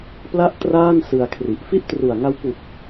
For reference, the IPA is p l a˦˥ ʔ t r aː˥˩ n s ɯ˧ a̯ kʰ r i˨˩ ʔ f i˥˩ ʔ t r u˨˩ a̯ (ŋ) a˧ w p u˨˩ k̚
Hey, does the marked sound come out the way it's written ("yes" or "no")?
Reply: yes